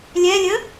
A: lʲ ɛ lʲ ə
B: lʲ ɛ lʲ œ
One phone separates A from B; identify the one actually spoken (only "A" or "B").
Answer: A